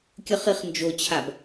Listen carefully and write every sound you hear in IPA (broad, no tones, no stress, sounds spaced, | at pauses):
kʲ ə χ i χ n d͡ʒ o t͡ɕʰ a b